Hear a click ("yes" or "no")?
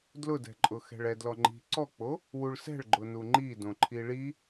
yes